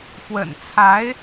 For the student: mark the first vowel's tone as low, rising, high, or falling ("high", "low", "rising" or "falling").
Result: low